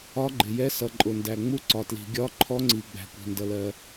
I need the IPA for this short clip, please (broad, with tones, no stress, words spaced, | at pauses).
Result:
ɒ˧˥ɡ͡ǃɪ˩ jɛ˧˥sʌ˩ ǃʼʊ˩ndæ˩ŋ͡mu˧˥ ǀɒ˩tli̤˩ ɡʲɒ˧˥ ǃʰɔ˧˥ŋ͡ǀi˩ ɡ͡bæ̤˩kʷi̤˩ndʌ˩ lɜ˩